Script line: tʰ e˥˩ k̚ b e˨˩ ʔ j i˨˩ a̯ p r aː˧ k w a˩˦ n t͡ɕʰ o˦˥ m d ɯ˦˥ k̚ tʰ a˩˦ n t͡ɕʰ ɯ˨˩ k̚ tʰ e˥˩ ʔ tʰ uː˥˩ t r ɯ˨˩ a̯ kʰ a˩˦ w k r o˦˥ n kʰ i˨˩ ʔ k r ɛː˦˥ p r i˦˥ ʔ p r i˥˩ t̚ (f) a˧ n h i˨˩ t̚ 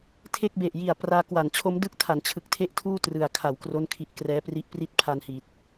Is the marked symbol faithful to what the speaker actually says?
no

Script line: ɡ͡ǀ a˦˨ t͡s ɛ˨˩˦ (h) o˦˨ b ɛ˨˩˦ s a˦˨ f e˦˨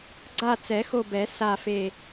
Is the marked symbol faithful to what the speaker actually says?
no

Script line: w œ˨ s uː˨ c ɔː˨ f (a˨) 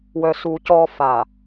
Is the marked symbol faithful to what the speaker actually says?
yes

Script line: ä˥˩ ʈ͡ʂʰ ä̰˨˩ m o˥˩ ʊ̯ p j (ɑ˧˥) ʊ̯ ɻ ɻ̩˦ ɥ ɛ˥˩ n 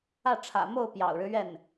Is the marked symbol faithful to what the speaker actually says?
no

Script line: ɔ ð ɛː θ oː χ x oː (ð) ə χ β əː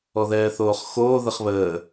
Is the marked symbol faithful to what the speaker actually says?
yes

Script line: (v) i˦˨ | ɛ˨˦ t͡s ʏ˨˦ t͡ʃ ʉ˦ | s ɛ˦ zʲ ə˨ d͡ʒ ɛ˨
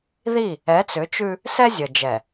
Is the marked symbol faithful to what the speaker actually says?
no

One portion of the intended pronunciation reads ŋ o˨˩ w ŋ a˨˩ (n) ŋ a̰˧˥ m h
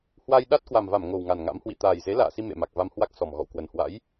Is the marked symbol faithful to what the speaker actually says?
yes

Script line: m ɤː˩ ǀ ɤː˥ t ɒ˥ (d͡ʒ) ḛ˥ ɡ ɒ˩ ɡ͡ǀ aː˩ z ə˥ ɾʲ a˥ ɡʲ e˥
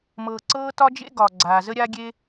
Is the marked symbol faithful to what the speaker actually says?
yes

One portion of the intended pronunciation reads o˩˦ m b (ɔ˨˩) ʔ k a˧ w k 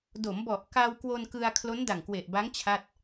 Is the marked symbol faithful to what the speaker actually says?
yes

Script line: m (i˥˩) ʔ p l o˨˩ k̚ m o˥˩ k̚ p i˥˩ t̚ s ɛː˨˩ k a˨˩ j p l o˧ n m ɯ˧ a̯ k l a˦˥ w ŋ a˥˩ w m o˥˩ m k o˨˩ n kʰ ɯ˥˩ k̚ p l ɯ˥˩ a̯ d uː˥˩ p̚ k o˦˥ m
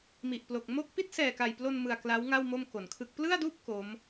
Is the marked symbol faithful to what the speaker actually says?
no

